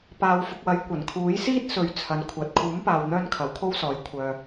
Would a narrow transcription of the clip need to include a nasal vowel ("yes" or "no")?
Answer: no